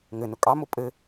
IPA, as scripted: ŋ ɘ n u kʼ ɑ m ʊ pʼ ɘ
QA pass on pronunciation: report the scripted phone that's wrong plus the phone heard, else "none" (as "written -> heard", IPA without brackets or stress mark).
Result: u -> ʊ